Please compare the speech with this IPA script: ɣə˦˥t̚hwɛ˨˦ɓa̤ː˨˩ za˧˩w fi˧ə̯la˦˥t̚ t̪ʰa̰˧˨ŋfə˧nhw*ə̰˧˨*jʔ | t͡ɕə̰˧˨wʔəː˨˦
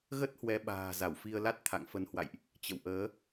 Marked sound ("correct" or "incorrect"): incorrect